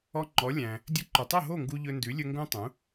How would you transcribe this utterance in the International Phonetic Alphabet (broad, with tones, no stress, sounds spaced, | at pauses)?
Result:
ɔ˧ ŋ͡ǃ ɔ˩˥ lʲ æ̃˩ | dʲ ɵ˧ ǃ u˩ tˤ o˥˩ ɦ o˥˩ ŋ ɡ u˧ ʎ ɵ˧ n d ʉ˩˥ lʲ ɵ˧ ŋ ɡ õ˥ tˤ ũ˩˥